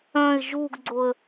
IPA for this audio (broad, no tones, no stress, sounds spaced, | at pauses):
œ̃ ɪ̯ ʒ u ɡ ɡ͡ǀ o ə̯